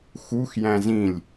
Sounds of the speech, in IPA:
xuxjæ̃z ĩlʲ

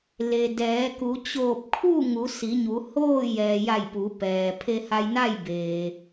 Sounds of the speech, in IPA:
le˩dɛː˩˧ku˩˧ t͡ɕoː˧˩p̚kʰu˥˨ŋu˩˧ si˩˧ɲu˩˧hoː˥˨ jɛː˩ja˧˩j pu˩˧pɛː˩ pʰe˧ha˧jna˥˨jbeː˩

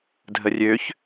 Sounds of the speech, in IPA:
dʱərʲøç

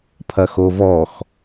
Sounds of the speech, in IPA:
pʰɐxovɔx

